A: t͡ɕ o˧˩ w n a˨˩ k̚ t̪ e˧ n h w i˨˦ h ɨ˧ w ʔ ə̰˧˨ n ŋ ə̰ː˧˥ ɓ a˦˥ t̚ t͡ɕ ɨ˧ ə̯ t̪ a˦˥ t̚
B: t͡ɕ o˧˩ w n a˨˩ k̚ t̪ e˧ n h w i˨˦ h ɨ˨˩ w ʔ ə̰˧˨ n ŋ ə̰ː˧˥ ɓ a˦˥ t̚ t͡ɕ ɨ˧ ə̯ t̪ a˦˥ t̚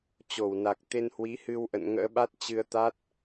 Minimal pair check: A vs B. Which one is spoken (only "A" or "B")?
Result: A